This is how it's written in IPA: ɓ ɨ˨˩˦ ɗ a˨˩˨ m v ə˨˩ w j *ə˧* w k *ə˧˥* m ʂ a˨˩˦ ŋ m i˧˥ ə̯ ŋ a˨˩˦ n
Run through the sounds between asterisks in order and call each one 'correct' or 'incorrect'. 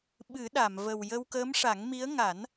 correct, incorrect: əː˧˥

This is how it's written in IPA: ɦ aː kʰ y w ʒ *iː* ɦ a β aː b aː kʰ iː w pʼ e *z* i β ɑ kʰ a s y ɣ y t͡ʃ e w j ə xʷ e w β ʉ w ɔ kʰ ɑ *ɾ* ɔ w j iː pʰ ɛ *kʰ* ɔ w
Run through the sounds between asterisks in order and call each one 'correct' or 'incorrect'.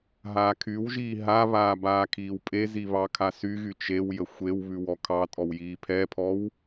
correct, correct, incorrect: tʼ, incorrect: pʰ

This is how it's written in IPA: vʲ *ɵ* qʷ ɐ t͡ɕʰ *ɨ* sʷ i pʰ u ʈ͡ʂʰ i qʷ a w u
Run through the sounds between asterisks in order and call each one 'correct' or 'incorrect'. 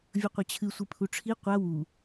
correct, correct

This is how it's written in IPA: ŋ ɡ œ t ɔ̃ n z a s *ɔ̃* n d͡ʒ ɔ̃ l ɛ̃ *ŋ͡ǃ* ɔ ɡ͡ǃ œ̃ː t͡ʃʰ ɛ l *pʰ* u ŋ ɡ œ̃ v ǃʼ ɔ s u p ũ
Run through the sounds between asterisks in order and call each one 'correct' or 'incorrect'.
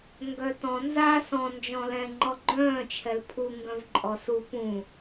correct, correct, correct

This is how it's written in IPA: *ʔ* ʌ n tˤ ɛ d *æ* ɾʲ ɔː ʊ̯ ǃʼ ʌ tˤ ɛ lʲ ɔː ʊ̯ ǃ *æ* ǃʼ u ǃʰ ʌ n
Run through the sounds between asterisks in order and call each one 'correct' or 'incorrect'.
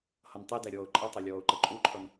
incorrect: h, correct, incorrect: ə

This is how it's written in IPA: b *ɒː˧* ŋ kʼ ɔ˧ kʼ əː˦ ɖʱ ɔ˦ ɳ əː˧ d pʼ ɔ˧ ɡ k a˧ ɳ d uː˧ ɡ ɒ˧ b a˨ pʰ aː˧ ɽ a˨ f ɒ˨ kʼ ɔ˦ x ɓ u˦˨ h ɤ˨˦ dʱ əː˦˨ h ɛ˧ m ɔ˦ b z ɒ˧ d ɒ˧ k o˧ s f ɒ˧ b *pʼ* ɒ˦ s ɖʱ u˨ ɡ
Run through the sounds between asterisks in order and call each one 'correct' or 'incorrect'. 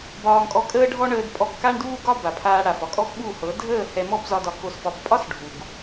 correct, correct

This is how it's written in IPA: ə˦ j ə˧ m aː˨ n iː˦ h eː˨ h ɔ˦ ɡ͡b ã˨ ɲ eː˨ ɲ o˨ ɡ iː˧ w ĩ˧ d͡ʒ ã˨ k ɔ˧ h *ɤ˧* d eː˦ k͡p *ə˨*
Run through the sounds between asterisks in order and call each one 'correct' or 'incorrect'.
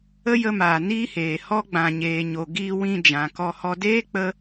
incorrect: ɔ˧, incorrect: ə˧

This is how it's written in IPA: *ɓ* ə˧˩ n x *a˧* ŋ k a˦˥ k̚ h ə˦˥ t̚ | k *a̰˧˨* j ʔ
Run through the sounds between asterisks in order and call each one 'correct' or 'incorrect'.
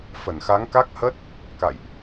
incorrect: f, incorrect: a˨˦, correct

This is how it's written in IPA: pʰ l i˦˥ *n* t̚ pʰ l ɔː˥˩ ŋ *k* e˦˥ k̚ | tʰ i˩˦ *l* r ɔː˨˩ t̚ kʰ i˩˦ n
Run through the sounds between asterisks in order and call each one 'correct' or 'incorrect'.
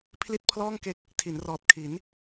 incorrect: none, correct, incorrect: n

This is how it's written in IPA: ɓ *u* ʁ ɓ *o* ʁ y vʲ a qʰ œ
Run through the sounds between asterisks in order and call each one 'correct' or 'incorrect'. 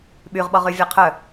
incorrect: y, incorrect: ɔ

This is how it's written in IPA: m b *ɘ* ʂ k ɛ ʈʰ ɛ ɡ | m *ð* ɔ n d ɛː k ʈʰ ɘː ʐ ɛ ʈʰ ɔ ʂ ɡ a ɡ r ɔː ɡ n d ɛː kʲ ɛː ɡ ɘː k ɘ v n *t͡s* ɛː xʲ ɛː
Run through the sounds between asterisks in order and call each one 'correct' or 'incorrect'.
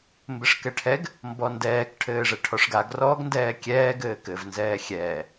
correct, incorrect: b, incorrect: z

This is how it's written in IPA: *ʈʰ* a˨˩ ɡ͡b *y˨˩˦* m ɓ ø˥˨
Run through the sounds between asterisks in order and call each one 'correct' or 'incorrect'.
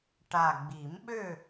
incorrect: ʈ, incorrect: i˨˩˦

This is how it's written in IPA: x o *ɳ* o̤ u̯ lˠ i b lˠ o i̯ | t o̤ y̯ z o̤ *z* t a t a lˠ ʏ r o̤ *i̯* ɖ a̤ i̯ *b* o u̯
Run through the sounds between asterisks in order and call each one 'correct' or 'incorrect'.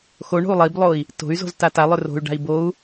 correct, correct, incorrect: y̯, correct

